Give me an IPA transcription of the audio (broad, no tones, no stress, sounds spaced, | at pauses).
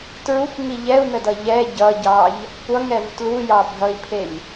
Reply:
t ɹ u kʷ ŋ i ʎ ɛ u̯ n ə d ʌ ʎ ɛ ɟ ʌ ɟ ɑ ʎ | kʷ ʌ ŋ ɛ v t l u j ɑ bʱ ʌ i̯ pʰ e ɲ